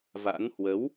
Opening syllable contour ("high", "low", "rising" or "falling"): rising